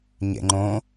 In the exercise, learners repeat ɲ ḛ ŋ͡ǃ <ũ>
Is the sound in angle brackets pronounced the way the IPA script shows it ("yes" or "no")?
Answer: no